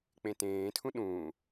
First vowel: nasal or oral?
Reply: nasal